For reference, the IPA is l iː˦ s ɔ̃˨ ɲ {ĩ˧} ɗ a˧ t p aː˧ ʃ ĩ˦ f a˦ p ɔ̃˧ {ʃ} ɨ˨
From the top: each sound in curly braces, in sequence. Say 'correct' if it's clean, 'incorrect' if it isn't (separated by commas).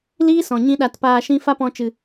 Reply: incorrect, incorrect